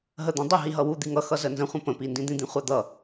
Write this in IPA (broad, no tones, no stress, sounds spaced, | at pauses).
ɦ ə d̪ ã dˤ ə ɦ i ɦ ʌ w u d̪ i ŋ ʌ x ʌ z ə n z ə̃ χʷ ə̃ p ə̃ p i n d ĩ d̪ ĩ d̪ ĩ χʷ a d̪ ʌ